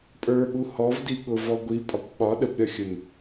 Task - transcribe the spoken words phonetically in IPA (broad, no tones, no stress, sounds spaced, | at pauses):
pʼ ə˞ ɠ u h ɔ v d i ɠ ʊ v ɔ ɡʷ i pʼ ɒ kʷ ɓ ɒ ɗ ə b ɾʲ ɒ xʲ ʊ n